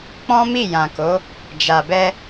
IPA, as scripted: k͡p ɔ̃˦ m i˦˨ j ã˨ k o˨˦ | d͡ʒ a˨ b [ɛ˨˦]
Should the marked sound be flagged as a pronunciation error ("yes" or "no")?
yes